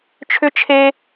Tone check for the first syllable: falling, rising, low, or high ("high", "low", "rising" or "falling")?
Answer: high